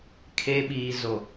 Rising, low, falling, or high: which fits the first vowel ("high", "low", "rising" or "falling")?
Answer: high